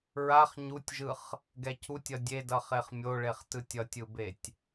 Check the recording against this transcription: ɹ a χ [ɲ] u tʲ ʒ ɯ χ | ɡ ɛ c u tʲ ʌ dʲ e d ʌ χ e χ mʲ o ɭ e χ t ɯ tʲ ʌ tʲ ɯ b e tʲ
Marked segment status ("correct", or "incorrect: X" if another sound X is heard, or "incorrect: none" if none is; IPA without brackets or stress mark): correct